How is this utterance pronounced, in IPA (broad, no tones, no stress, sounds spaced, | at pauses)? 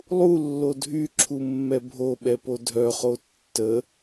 lˠ u lː o dʱ y ǁʰ u mː ɛ bʱ o ɓ ɛ p o dʱ œ χ o tː ə